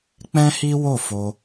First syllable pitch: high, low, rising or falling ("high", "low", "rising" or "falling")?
high